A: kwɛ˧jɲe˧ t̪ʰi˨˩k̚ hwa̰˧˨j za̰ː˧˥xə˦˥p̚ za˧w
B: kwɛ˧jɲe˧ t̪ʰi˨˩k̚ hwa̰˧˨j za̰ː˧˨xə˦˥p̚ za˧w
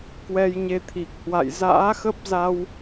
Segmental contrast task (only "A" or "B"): A